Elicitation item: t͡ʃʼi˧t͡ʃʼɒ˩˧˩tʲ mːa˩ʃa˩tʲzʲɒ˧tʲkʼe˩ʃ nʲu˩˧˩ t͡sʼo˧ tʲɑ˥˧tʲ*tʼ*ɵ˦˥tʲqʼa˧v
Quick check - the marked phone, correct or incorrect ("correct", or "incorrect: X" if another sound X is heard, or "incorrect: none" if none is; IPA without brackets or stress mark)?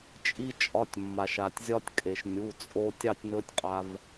incorrect: n